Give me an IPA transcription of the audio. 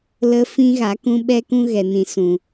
l ə˦ f ĩ˦ ɣ a˨˦ k ũ˧ ɓ ɛ˧ k ũ˧ ɣ ɛ˨ n ĩ˨ s ũ˨

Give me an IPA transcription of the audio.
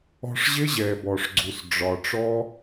ɔ̤˧ ʂ ʑ ɪ˦ ʑ ɛ˨ b ɔ˨ ʂ ɡ͡ǀ u˨ s ɖ͡ʐ ɒ˨ ʈ͡ʂ ɔ˦

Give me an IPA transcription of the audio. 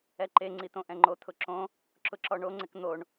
ɛ ǃ e ŋ͡ǀ i t̪ õ ʔ ɛ̃ ŋ͡ǃ o t̪ʰ ʊ ǁ õ | ǁ ʊ ǁ ɔ ɳ o ŋ͡ǀ ɪ k n̪ o ɳ

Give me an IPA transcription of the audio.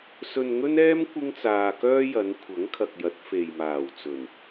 s ɵ˧ n ŋ ɵ˥ n ɛː˥ m kʷ ɪ˥ ŋ t͡s aː˧ k œː˥ j ɐ˨˧ n kʷʰ ɐ˨˥ ŋ kʰ ɐ˨ k̚ j ɐ˨˥ t̚ f e˨ j m aː˨˩ w t͡s ɵ˨˩ n

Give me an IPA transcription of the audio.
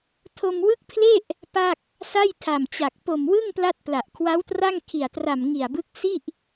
tʰ o˧ m w ɯ˦˥ k̚ pʰ l e˥˩ ʔ | p a˥˩ k̚ | s a˥˩ j tʰ a˨˩ m t͡ɕ a˨˩ k̚ p o˨˩ m w ɯ˥˩ ŋ p l a˥˩ t̚ p l a˨˩ ʔ kʰ w a˦˥ w t r a˥˩ ŋ kʰ i˨˩ a̯ t r a˨˩ m ŋ i˨˩ a̯ b ɯ˦˥ k̚ s i˥˩ ʔ

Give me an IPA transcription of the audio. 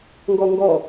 ŋ ɡ ɔ ŋ ɡ ɔ

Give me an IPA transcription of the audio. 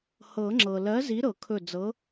h ɤ˨˩˦ ŋ͡ǁ ɤ˩ l ɜ˨˥ z i˨˥ ɾ ɤ˨˩˦ kʰ ɵ˧˩ d͡z ɤ˨˥

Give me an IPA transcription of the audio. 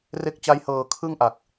r e˦˥ k̚ t͡ɕ a˦˥ j h ɤː˨˩ kʰ ɯ˥˩ ŋ ʔ a˨˩ k̚

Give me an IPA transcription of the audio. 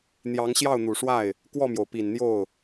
n̪ j ɑ˧˥ ŋ ɕ j ɑ˥˩ ʊ̯ n̪ u˨˩ ʂ w a˥˩ ɪ̯ | k w ɔ˥˩ m j o˩ ʊ̯ p i˨˩ n n̪ j o˥˩ ʊ̯

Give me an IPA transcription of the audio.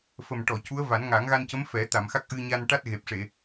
f ə˨˩ m ʈ ɔ˨˩˨ c u˧˥ ə̯ v a˨˩˦ n ŋ a˨˩˦ ŋ ɣ a˧ n c ə˧˥ m f ɛ˨˩˦ t̪ a˨˩˨ m x a˦˥ k̚ ʔ ɨ˧ ɲ a˧ n ʈ a˦˥ t̚ ɣ e˨˩ p̚ ʂ e˨˩˨

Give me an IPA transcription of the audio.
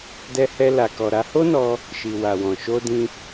d ɛ˧ h ɛ˧ l a˨ k ɔ˨ ɾ a˧ h o˦ n ɔ˧ | ʃ i˨ w a˨ w ɔ̃˨ ʃ o˧ d ĩ˧

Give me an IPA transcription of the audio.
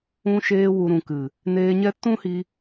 ũ˧ ʃ eː˧ w u˨ ɾ ũ˨ k ɨ˨ | n eː˧ ɲ ɛ˦ t ũ˦ h i˧

